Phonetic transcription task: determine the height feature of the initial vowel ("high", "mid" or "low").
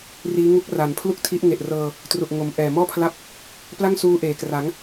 high